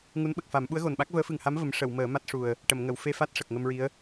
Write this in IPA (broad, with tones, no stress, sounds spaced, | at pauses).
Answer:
ŋ u˧˥ n ɓ ə˨˩ k̚ f a˨˩˦ m ɓ u˧˥ ə̯ ɣ o˨˩ n ɓ a˦˥ k̚ v əː˧˥ f ɨ˨˩ ŋ h a˧˥ m v ə˧˥ m ʂ ə˨˩˨ w m əː˨˩˦ m a˦˥ t̚ ʂ u˨˩ ə̯ | ʈ ə˨˩˨ m ŋ ə˨˩˨ w f e˧ f a˦˥ t̚ ʂ ə˨˩ k̚ ŋ ə˧ m ɹ i˧˥ ə̯